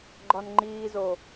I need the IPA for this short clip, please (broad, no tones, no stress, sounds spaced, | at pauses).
ɡ͡ǃ ɒ n ŋ͡ǃ iː z o